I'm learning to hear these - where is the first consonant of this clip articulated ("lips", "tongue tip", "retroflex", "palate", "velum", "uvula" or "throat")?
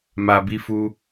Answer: lips